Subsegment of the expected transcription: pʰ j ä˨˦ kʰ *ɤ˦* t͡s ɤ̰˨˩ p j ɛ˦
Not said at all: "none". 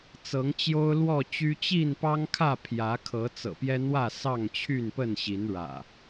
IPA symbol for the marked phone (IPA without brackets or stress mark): ɤ˨˦